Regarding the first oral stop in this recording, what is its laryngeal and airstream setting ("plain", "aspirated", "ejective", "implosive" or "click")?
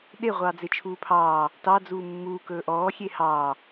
implosive